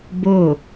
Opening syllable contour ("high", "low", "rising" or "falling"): falling